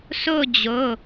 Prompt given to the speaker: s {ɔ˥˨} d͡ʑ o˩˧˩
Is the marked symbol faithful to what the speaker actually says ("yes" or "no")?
no